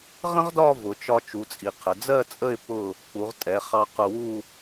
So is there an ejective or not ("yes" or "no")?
yes